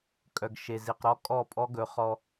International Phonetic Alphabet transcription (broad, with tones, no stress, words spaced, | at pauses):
kʼœ˨ɡ ʃe˨ zi˨q ɾɔ˦ kʼɔ˦˨pʼɔ˦ɡɵ˨˦ χɔ˦